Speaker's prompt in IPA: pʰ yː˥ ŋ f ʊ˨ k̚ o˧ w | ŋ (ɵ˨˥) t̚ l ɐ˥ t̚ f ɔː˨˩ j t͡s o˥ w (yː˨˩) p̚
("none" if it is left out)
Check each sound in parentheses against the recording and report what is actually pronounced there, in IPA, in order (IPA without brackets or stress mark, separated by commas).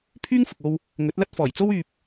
ɵ˨˥, yː˧